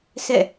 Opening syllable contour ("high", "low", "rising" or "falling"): falling